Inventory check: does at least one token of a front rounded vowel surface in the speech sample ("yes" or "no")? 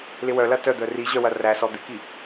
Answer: yes